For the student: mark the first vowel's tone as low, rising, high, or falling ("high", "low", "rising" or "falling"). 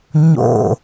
falling